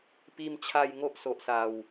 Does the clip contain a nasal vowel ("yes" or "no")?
no